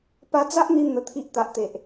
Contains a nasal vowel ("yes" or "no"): no